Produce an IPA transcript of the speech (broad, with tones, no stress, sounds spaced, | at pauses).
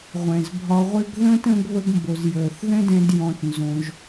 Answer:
ʁʷ ɛ̃˨ z bʱ ɒ˧ ʁʷ ɪ˦ ɡ ð ə̃ː˦ t ə̃˧ ɡ β ə˧ ɡ m b o˨ z j əː˨ θ ð ɛ̃˦ d ɛ̃˧ d j ɔ̃˧ t n z õ˧ ʒ